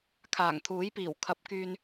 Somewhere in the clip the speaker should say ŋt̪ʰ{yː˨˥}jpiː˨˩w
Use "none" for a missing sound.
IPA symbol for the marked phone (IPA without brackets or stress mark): uː˨˥